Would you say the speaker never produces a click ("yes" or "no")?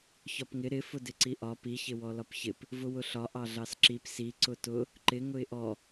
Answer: no